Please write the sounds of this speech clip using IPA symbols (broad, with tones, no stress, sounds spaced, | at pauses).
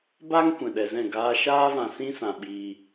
b a˧ ŋ kʷ ɛ̃˨ ɗ ɛ˨ z ɛ̃˦˨ ɡ aː˧ ʃ aː˦ v ã˨ s ĩ˦ s ã˨ ɓ iː˨